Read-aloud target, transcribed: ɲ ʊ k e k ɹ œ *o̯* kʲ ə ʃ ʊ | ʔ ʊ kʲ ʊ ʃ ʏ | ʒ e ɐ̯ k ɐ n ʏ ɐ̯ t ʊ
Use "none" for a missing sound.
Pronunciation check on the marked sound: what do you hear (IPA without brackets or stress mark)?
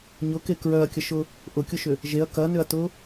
ɐ̯